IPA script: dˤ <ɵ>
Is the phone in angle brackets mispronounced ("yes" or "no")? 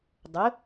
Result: no